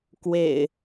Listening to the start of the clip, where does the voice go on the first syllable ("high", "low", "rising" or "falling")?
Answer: low